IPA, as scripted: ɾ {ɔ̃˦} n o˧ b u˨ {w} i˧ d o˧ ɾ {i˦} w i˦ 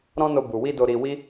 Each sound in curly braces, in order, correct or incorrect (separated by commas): correct, correct, incorrect